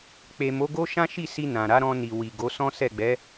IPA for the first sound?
k͡p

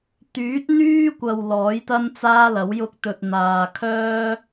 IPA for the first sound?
t̪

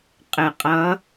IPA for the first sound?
qʼ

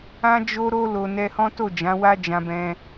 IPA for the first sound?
ã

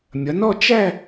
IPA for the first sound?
mʲ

